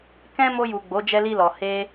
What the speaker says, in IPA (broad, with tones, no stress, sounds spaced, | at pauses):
k ɛ̃˦ m o˧ j u˨ ɡ͡b o˨˦ d͡ʒ ɛ˧ l i˧ l ɔ˨ h e˧